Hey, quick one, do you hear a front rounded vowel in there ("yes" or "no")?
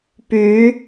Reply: yes